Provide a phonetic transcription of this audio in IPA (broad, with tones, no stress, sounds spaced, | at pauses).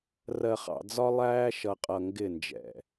r ɜ˨ χ ɑ̰˨ d͡z ɒ˦ lˠ æː˦ ʃ ʌ˨ qʼ ʌ˨ ŋ ɡ ɪ˦˨ n d͡ʒ ɛ̰˨